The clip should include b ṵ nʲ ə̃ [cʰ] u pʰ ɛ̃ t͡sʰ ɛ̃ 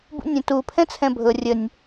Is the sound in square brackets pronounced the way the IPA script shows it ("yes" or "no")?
no